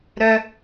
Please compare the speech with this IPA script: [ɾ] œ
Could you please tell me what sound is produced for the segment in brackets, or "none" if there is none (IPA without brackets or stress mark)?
ɾ